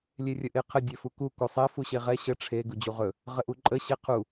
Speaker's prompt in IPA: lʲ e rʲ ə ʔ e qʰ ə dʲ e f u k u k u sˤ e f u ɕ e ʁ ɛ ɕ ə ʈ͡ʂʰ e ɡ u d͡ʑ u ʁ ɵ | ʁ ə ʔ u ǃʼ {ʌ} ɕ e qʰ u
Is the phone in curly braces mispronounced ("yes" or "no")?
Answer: yes